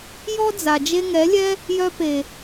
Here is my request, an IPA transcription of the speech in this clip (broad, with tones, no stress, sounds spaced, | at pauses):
j ɔ˦ d͡z a˨ d͡ʒ e˧ ŋ ɛ˨˦ lʲ ɛ˦ | j œ˧ p e˨